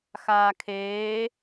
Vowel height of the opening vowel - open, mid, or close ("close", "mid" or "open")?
open